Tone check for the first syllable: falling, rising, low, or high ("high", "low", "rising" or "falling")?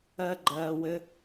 high